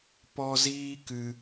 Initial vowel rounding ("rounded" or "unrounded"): rounded